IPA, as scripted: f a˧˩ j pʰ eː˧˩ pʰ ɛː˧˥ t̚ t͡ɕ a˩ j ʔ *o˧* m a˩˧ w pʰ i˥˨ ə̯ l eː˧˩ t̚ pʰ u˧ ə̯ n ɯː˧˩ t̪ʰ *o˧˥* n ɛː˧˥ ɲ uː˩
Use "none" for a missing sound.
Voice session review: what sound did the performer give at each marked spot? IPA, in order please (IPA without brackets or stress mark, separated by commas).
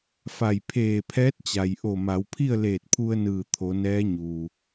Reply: o˧˩, o˩˧